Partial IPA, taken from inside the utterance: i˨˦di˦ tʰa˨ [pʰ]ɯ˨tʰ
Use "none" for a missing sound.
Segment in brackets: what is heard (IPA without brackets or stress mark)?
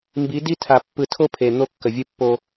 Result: pː